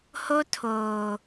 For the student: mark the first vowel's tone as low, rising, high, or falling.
high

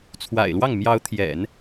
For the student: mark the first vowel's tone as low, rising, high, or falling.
low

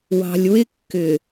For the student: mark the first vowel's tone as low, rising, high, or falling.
low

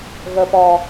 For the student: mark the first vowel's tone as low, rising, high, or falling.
low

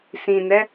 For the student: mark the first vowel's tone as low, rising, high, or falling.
low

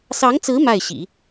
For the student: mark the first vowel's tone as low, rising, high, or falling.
rising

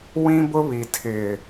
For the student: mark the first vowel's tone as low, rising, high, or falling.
high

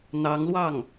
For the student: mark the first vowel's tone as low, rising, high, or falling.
rising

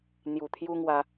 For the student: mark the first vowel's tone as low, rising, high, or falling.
low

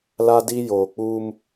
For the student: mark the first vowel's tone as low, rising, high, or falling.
high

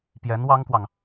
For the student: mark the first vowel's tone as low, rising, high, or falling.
rising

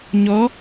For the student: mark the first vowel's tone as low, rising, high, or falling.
rising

